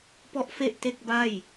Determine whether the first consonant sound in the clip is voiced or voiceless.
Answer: voiceless